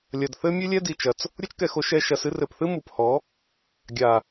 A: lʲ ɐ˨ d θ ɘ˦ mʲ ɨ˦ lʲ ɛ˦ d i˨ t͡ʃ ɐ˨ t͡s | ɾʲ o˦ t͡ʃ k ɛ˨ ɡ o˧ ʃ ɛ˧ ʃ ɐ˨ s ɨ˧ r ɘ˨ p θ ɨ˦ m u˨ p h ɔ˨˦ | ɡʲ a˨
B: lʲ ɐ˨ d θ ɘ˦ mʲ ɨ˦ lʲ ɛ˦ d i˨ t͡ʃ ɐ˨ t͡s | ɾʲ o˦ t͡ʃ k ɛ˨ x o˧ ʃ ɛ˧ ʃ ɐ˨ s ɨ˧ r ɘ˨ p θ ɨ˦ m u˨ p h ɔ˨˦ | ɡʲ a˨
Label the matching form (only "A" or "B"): B